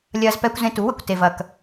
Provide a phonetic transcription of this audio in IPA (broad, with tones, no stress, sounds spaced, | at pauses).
lʲ ɐː˦ z p ɛ˦ kʷ z ẽ˦ t u˨˦ w ɘ˨ kʷ t e˨ v ɐ˨ k